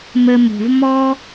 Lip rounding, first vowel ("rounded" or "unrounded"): unrounded